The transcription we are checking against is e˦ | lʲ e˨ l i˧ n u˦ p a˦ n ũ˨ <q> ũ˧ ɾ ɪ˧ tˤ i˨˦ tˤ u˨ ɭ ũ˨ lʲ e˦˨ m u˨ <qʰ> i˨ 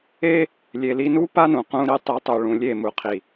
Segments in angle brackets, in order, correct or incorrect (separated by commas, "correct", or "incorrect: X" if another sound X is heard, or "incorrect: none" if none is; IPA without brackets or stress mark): correct, correct